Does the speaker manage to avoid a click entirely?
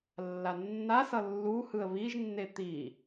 yes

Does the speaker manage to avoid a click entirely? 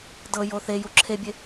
no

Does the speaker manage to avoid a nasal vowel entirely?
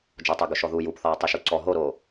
yes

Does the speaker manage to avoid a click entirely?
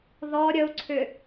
no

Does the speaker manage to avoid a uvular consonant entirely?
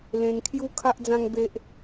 yes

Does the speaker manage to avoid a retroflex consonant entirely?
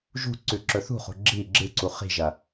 yes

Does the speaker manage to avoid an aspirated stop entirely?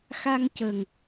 yes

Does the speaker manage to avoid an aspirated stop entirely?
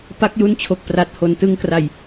no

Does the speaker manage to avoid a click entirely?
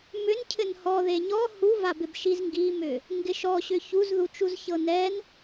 yes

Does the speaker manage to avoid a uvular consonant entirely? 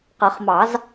no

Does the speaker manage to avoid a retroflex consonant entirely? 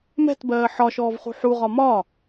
yes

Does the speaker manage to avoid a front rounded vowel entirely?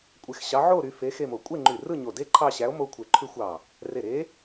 no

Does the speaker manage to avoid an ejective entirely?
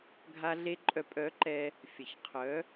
no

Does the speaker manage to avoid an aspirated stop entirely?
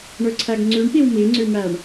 no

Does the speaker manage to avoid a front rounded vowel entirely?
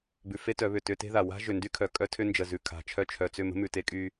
no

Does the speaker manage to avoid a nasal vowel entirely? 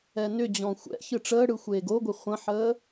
no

